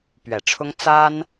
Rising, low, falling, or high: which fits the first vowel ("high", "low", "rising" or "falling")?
low